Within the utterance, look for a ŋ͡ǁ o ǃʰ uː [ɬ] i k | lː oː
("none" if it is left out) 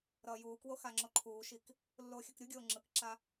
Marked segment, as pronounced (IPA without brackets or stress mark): ʃ